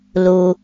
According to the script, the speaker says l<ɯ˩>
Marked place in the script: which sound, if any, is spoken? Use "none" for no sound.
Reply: u˩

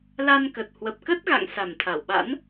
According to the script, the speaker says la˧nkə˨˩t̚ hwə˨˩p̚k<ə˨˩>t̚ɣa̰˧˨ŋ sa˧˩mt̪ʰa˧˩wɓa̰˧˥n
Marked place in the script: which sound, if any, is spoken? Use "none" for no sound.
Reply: ə˦˥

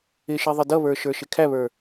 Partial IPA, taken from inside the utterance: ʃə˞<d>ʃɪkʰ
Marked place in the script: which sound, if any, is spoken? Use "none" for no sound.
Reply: none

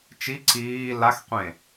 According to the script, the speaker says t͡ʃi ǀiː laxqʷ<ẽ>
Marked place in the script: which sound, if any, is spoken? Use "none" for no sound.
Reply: ẽ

